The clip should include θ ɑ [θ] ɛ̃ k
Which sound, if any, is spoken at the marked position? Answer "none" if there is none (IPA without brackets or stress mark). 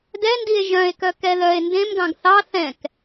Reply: θ